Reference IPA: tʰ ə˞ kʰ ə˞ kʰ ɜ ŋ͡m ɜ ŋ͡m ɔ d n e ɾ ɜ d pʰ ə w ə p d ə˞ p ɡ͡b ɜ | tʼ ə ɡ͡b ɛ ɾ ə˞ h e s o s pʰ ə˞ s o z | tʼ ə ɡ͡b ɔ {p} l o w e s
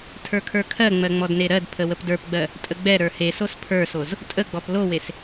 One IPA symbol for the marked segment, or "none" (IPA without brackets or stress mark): p